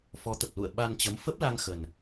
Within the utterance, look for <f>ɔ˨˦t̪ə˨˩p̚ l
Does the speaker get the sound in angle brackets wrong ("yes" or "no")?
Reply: no